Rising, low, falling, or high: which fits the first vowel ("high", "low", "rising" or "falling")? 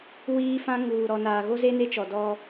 high